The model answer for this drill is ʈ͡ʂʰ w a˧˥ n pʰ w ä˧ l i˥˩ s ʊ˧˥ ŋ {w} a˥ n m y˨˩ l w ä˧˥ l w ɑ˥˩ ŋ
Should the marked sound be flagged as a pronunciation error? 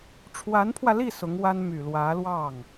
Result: no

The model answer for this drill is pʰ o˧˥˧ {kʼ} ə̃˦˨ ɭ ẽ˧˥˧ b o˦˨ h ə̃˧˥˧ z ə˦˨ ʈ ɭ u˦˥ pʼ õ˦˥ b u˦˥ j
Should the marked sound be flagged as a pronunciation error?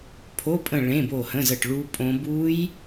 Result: yes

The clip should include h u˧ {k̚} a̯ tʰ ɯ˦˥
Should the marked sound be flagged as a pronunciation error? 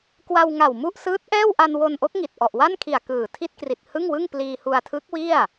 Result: yes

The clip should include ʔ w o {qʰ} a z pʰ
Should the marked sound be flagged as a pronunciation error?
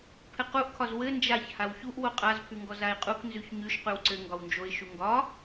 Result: yes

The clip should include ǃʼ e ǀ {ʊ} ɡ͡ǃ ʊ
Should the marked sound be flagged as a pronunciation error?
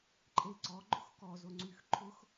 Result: yes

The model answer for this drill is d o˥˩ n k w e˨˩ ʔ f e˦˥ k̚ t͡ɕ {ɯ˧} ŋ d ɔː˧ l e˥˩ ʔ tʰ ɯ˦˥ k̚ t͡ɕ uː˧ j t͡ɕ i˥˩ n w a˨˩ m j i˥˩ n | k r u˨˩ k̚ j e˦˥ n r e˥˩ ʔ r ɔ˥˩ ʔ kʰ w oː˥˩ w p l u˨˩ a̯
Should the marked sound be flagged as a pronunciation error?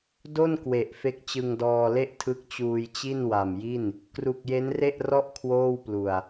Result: no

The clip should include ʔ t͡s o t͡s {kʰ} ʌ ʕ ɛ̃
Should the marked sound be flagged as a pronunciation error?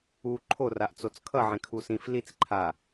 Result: no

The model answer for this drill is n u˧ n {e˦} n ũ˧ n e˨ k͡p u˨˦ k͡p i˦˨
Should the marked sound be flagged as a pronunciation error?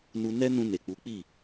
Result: yes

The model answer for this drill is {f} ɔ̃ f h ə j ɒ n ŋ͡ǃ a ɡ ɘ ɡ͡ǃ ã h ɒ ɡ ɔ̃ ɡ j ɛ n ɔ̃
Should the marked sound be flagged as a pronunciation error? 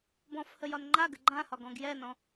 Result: yes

